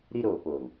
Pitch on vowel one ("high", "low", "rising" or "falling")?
high